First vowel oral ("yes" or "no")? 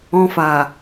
no